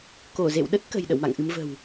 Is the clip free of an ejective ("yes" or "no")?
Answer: yes